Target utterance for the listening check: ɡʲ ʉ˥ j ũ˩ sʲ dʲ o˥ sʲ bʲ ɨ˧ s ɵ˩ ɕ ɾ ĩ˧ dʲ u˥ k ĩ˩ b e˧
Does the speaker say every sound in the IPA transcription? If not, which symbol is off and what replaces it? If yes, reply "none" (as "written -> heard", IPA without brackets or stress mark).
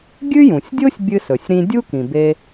ɕ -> sʲ